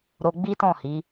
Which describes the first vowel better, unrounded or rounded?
rounded